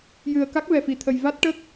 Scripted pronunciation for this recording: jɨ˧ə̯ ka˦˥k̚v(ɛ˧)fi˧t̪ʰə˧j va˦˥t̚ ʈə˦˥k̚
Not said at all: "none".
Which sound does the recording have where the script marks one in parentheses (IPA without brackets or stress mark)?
ɛ˧